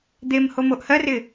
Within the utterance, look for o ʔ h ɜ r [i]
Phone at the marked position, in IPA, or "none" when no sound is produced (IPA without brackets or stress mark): ɪ